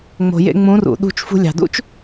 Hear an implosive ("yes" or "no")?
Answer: yes